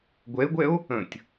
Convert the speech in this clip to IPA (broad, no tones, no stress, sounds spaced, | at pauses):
ɡʷ ɛ e̯ ɡʷ ɛ o̯ | ə̃ tʲ